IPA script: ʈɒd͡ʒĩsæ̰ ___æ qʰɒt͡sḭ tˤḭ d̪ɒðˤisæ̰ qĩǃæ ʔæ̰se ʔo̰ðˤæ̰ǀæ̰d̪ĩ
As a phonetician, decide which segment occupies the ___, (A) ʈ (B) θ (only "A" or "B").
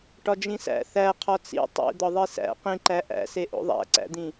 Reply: B